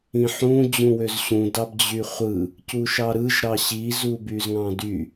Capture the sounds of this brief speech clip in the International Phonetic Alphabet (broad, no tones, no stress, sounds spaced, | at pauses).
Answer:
ĩ ħ ũ d͡ʑ ũ w ø z ɕ ũ d ɑ b d͡ʑ y χʷ ɯ | c u ʃ ɑ ɾ ɯ ʒ ɾ ɑ ɕ i z u b y z ŋ ɑ̃ d y